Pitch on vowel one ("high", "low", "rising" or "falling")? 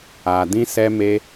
low